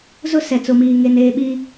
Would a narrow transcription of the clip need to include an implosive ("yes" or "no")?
yes